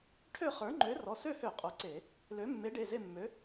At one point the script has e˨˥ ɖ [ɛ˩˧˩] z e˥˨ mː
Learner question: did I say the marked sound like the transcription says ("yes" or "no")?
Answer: no